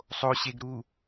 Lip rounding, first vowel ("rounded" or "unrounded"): rounded